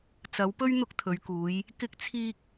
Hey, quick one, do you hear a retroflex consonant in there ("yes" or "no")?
no